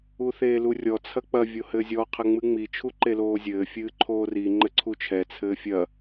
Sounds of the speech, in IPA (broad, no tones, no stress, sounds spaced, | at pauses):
u θ eː l u rʲ ɔ t͡sʰ ɐ k͡p ɐ vʲ o h ɘː zʲ ɔ qʰ ɘ ŋ͡m ɨ ŋ͡m i t͡ʃʰ u ǃ e l oː zʲ ɘː fʲ ɨː ǃʰ oː r i ŋ͡ǃ ɘ ǀʰ u t͡ʃʰ ɛ t͡sʰ ɘː fʲ ɐ